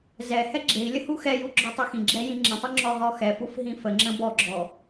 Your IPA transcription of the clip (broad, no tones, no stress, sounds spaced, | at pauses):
z ɛ h ɛ ɡ͡ǁ e i̯ lʲ ə h u x ɛ j u ɡ͡ǁ ɔ tˤ u x ĩ ɡ͡ǁ ɛ j ĩ ŋ͡ǁ ə̃ tˤ u ŋ͡ǁ ɔ ʁ ɔ x ɛ f u f ɦ ĩ f ə ŋ͡ǁ ə̃ b ɔ ɡ͡ǁ ɔ